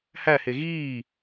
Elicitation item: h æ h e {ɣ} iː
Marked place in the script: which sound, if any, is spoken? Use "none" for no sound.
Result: ɣ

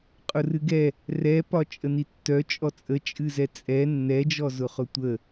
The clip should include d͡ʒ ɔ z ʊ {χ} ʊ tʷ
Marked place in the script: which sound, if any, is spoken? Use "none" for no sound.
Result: χ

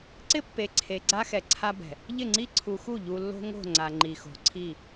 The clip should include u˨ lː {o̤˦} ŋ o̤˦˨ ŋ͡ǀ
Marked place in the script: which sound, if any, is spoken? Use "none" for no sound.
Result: o̤˦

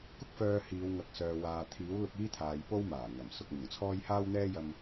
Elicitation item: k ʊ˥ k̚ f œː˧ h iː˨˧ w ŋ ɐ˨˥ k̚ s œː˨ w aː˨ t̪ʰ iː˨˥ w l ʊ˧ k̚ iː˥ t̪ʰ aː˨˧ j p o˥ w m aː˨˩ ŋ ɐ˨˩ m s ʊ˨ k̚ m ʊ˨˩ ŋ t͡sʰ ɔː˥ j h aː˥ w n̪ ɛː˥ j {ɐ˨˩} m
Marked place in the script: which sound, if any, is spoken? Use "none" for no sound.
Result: ɐ˧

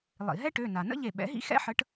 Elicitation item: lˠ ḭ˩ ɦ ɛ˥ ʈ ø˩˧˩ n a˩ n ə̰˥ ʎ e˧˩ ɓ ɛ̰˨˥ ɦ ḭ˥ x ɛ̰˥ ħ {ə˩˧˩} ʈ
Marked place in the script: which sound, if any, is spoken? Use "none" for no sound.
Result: ə˨˥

